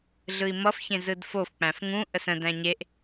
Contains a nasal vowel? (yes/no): yes